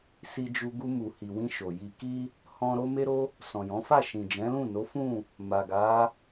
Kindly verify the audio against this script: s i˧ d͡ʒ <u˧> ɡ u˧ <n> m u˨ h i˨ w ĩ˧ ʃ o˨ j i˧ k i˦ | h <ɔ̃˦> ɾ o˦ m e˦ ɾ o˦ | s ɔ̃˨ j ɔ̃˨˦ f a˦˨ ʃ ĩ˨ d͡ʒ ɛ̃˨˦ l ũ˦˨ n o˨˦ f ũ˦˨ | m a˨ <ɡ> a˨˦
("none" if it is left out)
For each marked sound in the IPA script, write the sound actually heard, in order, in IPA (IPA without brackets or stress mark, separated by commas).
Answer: u˧, none, ɔ̃˦, ɡ